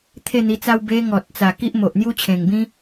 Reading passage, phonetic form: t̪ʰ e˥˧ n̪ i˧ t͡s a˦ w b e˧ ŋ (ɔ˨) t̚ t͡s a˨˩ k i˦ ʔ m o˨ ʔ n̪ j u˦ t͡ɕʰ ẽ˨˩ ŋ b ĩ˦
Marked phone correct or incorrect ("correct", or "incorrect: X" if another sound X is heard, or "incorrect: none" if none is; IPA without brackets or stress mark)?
correct